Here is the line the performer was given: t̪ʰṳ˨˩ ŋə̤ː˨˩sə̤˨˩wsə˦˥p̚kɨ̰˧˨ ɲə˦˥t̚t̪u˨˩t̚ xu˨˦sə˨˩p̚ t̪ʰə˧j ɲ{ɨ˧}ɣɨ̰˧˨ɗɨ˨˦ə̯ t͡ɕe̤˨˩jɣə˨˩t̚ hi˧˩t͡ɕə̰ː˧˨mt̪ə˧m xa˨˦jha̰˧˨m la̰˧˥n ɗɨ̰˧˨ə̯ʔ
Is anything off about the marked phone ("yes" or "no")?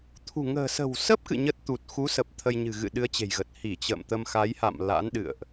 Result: yes